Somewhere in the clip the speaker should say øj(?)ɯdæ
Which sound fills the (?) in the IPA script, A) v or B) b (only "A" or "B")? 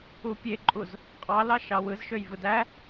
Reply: A